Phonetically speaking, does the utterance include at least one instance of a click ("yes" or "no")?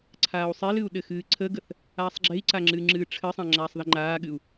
yes